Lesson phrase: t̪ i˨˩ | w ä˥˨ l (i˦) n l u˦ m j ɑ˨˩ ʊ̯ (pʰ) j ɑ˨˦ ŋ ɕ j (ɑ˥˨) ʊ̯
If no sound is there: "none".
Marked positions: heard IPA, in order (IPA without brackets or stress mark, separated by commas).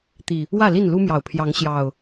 i˥˨, pʰ, ɑ˨˩